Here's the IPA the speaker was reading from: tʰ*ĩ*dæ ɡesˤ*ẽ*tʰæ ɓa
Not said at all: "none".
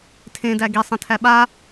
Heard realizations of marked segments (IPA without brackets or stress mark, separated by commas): ẽ, ẽ